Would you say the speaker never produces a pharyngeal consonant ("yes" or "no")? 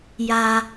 yes